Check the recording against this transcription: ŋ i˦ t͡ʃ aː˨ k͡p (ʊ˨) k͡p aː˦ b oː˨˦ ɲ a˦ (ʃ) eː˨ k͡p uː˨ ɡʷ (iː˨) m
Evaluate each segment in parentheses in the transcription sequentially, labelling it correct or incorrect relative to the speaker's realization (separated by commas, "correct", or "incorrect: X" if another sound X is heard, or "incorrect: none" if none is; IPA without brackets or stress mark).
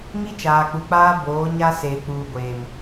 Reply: incorrect: u˨, incorrect: s, incorrect: eː˨